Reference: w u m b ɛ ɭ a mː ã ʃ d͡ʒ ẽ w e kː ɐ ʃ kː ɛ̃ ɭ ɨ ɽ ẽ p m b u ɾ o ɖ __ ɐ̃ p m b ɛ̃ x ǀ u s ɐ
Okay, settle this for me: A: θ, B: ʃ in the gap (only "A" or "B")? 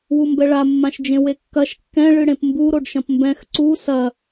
B